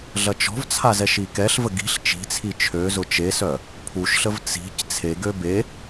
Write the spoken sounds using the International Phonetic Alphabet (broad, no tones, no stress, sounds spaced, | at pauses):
ɮ ɐ t͡ʃ ɔ̤ v t͡sʰ a z ɛ ʃ i k ɛ ɬ v ə ɡ i̤ ɬ t͡ʃ i̤ t͡sʰ i t͡ʃʰ ø z ʊ t͡ʃ e s œ | pʰ u ʃ ɬ ə v t͡s i̤ c t͡sʰ e ɡ ø b e